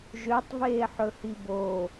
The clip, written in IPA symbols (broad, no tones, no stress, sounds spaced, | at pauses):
ʒ ø tˤ v eː ħ ɵ h i b o